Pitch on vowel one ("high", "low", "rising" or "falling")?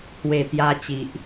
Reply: low